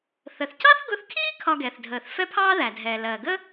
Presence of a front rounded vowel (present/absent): absent